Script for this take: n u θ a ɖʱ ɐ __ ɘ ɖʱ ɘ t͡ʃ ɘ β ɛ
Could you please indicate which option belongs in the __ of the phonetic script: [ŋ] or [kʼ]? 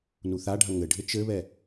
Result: ŋ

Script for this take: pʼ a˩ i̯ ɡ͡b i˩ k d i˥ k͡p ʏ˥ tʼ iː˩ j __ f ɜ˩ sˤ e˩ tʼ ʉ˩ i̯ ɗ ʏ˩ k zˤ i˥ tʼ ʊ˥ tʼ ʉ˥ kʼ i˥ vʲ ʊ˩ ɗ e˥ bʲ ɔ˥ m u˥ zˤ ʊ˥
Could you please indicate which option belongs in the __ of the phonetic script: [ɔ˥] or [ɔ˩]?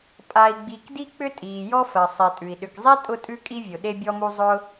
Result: ɔ˥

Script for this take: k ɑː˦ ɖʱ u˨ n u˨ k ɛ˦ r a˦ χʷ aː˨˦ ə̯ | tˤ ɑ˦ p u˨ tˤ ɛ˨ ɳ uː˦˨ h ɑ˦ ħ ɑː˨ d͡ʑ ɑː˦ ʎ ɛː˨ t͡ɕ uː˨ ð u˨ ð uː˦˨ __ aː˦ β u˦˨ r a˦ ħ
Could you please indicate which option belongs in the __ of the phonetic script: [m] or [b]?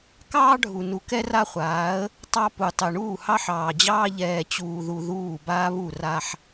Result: b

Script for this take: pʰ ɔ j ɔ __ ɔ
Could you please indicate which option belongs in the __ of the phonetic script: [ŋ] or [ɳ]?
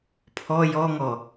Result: ŋ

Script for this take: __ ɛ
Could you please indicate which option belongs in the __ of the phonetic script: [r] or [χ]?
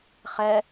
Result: χ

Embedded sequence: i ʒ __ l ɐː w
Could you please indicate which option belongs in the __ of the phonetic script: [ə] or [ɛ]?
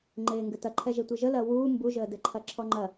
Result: ə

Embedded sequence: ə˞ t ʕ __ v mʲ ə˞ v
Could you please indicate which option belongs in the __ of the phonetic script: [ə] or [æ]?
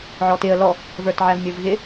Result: æ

